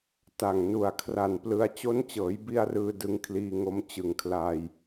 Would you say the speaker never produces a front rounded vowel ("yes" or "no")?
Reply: yes